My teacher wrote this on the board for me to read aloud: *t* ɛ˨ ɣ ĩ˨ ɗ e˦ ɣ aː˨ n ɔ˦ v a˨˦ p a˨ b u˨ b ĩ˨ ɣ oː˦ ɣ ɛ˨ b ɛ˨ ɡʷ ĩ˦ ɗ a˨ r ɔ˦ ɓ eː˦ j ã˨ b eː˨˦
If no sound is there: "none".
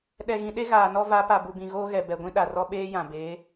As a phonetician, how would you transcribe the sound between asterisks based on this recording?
ɗ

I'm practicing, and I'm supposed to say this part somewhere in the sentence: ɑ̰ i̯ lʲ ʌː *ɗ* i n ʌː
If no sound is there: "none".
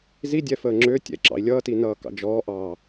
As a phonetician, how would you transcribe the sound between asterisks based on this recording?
t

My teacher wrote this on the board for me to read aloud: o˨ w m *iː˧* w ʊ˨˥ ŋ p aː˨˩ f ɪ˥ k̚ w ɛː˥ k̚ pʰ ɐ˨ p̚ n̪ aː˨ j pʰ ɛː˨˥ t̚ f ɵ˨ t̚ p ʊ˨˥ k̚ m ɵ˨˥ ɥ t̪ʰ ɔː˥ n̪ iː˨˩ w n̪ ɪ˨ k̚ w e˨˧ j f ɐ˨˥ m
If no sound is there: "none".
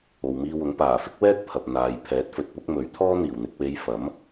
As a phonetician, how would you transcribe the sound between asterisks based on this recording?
iː˧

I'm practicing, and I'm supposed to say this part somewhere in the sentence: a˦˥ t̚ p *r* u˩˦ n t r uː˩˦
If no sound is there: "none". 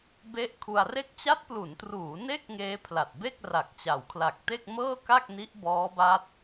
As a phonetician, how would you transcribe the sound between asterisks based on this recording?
l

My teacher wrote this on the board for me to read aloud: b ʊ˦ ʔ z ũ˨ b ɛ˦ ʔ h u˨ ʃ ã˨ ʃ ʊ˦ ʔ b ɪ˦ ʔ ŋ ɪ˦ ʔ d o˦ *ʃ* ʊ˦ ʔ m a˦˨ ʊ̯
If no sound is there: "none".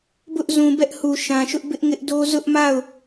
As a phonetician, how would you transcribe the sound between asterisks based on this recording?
z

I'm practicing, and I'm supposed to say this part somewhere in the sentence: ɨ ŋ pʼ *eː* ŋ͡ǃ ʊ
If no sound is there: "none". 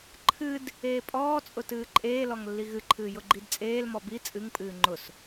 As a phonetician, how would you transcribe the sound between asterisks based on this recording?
ɨː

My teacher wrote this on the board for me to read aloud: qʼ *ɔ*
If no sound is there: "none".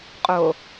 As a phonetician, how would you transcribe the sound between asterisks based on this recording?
o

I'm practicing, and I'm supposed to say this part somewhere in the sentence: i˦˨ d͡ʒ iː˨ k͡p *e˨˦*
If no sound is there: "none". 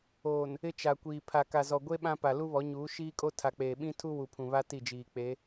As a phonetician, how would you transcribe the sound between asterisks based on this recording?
e˨˦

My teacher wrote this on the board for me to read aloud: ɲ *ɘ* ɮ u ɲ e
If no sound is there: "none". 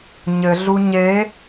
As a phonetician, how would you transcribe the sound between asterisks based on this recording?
ɘ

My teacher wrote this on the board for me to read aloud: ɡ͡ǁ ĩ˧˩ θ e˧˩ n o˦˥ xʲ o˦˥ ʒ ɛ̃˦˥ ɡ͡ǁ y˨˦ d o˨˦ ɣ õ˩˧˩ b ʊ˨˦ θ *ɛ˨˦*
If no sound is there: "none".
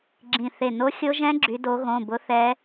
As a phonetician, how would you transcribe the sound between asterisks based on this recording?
ɛ˨˦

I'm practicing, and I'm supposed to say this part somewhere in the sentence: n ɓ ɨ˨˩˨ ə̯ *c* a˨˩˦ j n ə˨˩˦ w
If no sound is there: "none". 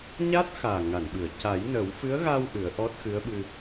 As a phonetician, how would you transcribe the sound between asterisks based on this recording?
c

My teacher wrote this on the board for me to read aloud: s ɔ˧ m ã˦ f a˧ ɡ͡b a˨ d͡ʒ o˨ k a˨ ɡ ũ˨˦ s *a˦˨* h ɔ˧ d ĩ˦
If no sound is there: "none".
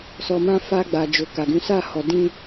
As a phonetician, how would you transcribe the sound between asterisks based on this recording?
a˦˨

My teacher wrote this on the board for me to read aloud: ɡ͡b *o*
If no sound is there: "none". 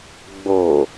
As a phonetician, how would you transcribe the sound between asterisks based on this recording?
o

